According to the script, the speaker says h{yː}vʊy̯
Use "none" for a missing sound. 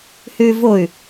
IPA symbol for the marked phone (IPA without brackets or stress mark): yː